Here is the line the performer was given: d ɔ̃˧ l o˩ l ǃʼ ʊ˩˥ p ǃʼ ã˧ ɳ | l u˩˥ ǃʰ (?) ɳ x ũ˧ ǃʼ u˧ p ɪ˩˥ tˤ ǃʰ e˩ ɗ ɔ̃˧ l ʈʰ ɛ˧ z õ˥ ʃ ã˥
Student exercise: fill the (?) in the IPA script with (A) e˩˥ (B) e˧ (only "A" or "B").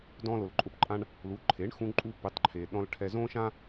A